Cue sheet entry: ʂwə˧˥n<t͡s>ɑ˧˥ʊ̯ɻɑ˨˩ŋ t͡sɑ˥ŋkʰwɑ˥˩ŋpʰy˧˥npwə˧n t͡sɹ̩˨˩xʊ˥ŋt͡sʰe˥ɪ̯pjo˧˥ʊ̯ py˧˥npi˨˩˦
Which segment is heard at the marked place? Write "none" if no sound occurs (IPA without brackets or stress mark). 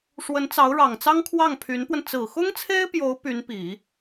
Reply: t͡s